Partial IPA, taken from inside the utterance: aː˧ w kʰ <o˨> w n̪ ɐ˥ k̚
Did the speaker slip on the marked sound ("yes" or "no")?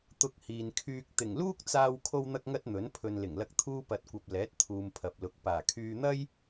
yes